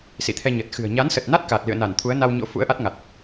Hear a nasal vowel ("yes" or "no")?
no